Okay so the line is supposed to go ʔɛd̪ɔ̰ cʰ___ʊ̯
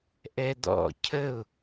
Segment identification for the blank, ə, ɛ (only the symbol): ə